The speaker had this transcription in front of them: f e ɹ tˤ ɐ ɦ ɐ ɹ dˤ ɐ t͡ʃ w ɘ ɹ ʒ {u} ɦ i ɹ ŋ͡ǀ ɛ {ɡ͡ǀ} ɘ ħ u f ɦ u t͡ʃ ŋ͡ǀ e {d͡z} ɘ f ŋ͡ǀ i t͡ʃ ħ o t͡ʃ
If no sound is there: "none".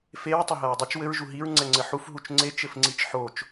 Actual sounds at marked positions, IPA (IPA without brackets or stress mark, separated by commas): u, ŋ͡ǀ, t͡ʃ